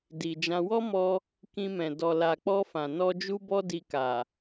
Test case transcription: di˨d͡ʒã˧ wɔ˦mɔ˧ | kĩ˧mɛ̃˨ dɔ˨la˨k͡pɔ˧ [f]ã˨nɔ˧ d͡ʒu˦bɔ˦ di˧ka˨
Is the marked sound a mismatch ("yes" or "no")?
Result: no